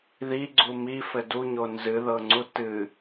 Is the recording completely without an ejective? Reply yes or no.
yes